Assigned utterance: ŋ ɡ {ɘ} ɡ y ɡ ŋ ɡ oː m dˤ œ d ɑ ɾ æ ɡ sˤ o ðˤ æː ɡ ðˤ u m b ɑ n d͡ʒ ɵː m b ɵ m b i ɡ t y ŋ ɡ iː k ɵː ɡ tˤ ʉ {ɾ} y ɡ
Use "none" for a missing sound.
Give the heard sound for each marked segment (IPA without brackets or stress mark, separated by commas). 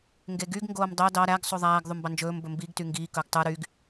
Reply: e, ɾ